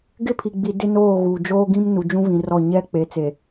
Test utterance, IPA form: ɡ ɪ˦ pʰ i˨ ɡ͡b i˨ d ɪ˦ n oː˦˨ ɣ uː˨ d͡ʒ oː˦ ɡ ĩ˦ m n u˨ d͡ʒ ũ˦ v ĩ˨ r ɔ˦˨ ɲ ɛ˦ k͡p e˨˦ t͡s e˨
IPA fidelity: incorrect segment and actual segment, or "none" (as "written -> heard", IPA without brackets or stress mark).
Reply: none